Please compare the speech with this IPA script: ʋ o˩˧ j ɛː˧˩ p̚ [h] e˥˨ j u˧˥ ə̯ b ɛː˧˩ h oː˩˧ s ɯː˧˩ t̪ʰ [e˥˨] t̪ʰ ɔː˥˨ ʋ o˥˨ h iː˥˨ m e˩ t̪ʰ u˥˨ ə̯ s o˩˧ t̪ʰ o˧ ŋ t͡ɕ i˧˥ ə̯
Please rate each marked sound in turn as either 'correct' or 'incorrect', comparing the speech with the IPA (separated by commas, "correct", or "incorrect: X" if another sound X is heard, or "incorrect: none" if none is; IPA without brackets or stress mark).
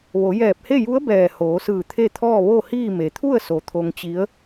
correct, correct